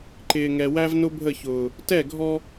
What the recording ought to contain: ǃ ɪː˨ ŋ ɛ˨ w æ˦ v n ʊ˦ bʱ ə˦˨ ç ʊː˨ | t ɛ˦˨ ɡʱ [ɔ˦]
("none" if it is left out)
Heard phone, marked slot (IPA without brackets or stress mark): ɔ˦